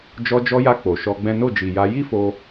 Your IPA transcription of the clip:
d͡ʒ ɔ˧ d͡ʒ ɔ˧ j a˧ k͡p o˨ ʃ ɔ˧ ɡ͡b ɛ̃˦ n o˦˨ d͡ʒ i˨ j a˧ j i˦ f o˧

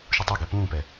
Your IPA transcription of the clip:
ʃ u tˤ o ɡ ɛ p ũː p ɛ

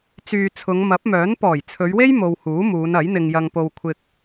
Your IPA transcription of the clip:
t͡s yː˨ t͡sʰ ʊ˨˧ ŋ m ɐ˨˥ p̚ m œː˨˥ n p ɔː˨˩ j t͡sʰ ɵ˨˧ ɥ w e˥ j m o˧ w h uː˨˥ m uː˨˧ n ɐ˨˥ j n̪ ɪ˧ ŋ j ɐ˧ ŋ p o˧ w kʷʰ ɪ˧ k̚

